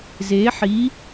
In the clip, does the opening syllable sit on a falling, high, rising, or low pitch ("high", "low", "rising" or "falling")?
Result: rising